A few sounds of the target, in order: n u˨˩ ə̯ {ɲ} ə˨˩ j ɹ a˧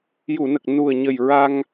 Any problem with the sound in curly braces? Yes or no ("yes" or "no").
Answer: no